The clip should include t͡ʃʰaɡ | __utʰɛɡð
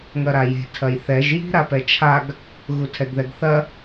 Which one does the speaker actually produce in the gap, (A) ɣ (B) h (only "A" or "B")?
A